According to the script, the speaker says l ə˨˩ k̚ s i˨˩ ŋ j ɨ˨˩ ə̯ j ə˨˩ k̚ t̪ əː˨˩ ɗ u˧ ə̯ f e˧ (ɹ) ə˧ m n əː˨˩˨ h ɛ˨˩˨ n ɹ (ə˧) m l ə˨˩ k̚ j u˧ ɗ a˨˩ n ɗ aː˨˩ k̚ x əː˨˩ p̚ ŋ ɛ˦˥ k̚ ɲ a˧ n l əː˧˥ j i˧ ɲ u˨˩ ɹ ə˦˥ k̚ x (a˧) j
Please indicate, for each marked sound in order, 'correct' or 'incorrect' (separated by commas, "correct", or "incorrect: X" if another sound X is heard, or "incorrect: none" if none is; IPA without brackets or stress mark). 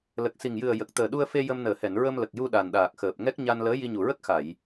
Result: incorrect: j, correct, incorrect: a˨˩˨